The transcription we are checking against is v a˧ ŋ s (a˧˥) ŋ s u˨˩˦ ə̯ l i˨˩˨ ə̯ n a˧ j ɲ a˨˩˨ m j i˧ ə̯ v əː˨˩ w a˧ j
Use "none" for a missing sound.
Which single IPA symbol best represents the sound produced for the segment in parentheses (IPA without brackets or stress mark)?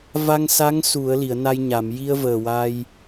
a˧˥